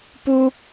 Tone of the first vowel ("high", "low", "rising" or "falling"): low